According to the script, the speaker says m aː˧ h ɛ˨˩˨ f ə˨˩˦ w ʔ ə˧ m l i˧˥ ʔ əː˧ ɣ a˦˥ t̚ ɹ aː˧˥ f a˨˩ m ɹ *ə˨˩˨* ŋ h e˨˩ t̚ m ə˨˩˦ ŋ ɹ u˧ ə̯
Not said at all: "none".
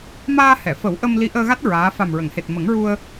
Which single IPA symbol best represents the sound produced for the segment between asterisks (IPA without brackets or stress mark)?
ə˨˩˨